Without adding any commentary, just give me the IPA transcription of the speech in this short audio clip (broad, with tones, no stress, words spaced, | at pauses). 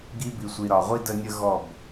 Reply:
ɡi˦ bi˨sʷi˨ɾɒ˨ʁʷi˦ də˦nʲə˦ɣɔ˦˨b